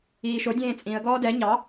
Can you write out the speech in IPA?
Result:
iːʃodʲẽː t͡sʼĩə̯ɡɔː dɛ ɲɑ

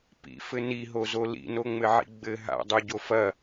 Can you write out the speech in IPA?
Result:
pḭfɘ niɦozo lḭnoŋ͡mɘʕḭ ɡ͡bɘ ɦa̰dˤuɟo fɐ

